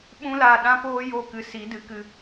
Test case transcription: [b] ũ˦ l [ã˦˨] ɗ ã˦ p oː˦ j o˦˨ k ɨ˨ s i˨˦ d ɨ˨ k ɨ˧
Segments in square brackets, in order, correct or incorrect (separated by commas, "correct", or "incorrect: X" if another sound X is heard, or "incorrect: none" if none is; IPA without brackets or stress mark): incorrect: ɓ, incorrect: a˦˨